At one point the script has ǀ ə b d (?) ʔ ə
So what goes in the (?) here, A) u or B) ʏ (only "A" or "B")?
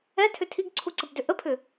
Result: B